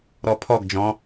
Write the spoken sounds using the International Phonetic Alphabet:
ɾɔpʰɔɡd͡ʒɔ̃

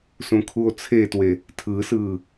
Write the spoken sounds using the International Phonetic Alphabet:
sũkʰuo̯t͡sʰetwe | tʰɯsɯː

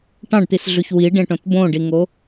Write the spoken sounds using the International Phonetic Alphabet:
ʈɑ̃ɖt̪isɮʉç wiɖẽʈõt bõɖiŋo

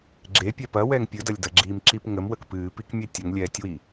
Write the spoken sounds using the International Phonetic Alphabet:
ɡ͡ǁepʲɛ pɐwɛŋ pʲɨdɐlʲdɐɡ͡ǁiːm ǁipŋəm wəkpɨːpikmʲe tʲʊŋlʲɛːtʲwi

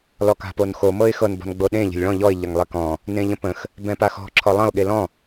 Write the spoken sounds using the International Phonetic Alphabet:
lɔka̤ponxo mɤɪ̯xɤn bɔ̤nɡ͡boɗẽ ʎə̤lʲɭɔ̃ ʎɔɪ̯ ʎɐŋlˠekɔ̃ | nẽʎə̃pə̃x | bɛ̃paxɔ̤ ǁʰɔlˠɐ̃ʊ̯ ɠelɔ̃

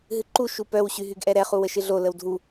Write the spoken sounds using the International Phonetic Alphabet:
ɦɨǃu ʃupœw ɕyɦyɡʔɛɾɛ χuwəʃɨɮo ləwdʱu

